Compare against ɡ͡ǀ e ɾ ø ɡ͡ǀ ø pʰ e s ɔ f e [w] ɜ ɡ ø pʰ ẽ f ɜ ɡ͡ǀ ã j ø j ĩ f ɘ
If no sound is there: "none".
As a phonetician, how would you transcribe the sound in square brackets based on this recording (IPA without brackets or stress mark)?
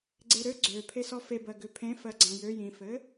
b